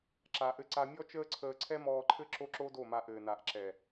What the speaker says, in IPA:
ǁa˨ʔɘ˧ǀa˧ mʲɔ˦t͡ʃəː˦ǀʰəː˧ǀʰɛ˦ mɔː˧ǃʰɘ˦ ǁo˦ǁo˦do˦˨ma˧ ʔɘː˨na˨ʔ ǁɛ˨

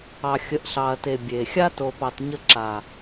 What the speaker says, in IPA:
ɑ˨xʲə˨˦ʔɬɑ˨ɐ̯te˨ bʲe˨ xʲa˦to˨pɑ˨t ɲə˦ ǁa˨

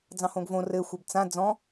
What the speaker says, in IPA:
d͡zɑ̃hõɡvõ rɘ xʷəbt͡sã d͡zɔ̃

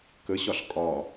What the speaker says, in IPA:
kəɕɒɬ kʼɒ

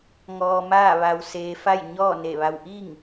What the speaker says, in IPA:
ŋɔː˧maː˥˨ʋa˧w seː˧fa˥˨jɲɔː˥˨ ne˧˩ʋa˧wʔi˥˨ŋ

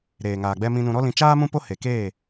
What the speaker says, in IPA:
ɾeː˨ŋaː˨ɡ͡bɛ˧ mĩ˧nũ˧ɾɔ˦lĩ˧ t͡ʃaː˦mũ˦po˦ he˨keː˦˨

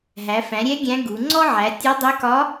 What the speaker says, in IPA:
ɦæ˩˧fæ̃˩˧ ɾʲɛ˧˥ ɡʲæ̃˧˥ɡu˩˧ ŋ͡ǀɔ˥ ʕæ˩˧ tʲɔ˧˥ dˤɛ˧˥kɒ˧˥

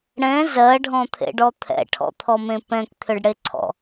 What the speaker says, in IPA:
ɽɛ̃ zɜɖʱɔ̃t̪ʰḛɖɔ t̪ʰɛ̰ʈʰɔ̰t̪ʰɔmẽ pɛ̃kt̪ʰʏɖɽeǀʰɔ̰

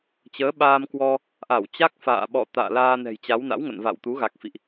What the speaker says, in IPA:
t͡ɕəː˨˦ɓaː˧mkwɔ˧ | ʔa˧˩wt͡ɕa˦˥k̚fa̰ː˧˨ɓɔ̰˧˨ t̪a̰ː˧˨laː˧nɛ̤˨˩jt͡ɕa˨˦w na̰˧˥wŋə̰˧˨nva̰˧˨wt̪u˨˦ ɣa˨˩k̚fḭ˧˨ʔ

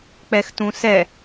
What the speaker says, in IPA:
k͡pɛxtũsɛ

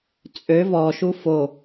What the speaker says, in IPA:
t͡sʼø vɔʃu fo

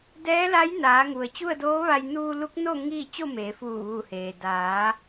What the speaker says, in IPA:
dɛː˧˥la˧˥jnaː˩˧ ŋu˩ə̯t͡ɕu˥˨ə̯doː˧˥ʋa˧j nuː˧lu˧˥k̚no˥˨ ŋi˥˨ t͡ɕo˥˨meː˩˧fuː˧˩ ʋu˧˩heː˩ daː˩˧

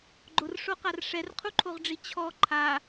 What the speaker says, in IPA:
ɡ͡ǃʊrʂoqar ʂɛrqʰuǃʰoʁɖ͡ʐi t͡ɕʰɔ ǃʰa

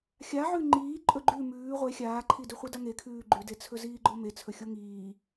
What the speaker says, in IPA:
xʲaʕʉ ŋ͡ǃiː ǃʼɵɡ͡ǃʉ mʉː ʁʷe xʲaːǃʰidʉ χʷidaŋe kʰʉːɡ͡ǃʉde t͡sʰɵziːɡ͡ǃome t͡sʰɵxʲoŋiː

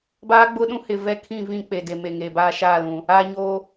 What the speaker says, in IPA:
baː˦ɡ͡bʊ˦ɗũ˦ hɪ˨ vɛ˦kʰĩ˦˨ vĩ˦˨ k͡pe˨de˨ me˨ŋeː˨baː˦ ʃaː˦˨lũ˨ | aː˨ɲoː˨

